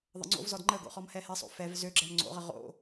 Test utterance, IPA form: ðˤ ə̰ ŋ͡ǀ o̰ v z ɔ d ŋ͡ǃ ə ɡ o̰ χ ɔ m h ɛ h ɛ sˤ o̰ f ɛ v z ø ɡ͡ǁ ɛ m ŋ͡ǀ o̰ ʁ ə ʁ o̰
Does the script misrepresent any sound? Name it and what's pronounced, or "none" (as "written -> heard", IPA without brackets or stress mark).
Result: none